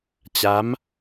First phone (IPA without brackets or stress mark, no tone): t͡ɕ